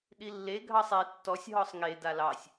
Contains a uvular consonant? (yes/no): no